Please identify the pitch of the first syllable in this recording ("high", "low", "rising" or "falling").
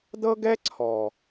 high